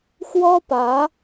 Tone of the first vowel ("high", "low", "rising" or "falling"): high